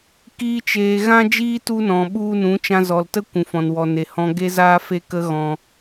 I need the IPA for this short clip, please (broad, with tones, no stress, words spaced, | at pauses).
kiː˧t͡ʃeː˨ ɣã˦d͡ʒiː˦ tu˦nɔ̃˨ ɓu˧nũ˨˦ t͡ʃã˧zɔ˨ltə˦ kʷũ˨fɔ̃˨nwɔ˨ne˨ hɔ̃˧ ɡe˦zaː˦fe˦ kə˦ɣɔ̃˧